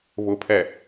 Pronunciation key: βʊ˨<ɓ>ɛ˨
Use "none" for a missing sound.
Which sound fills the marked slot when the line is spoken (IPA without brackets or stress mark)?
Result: pʰ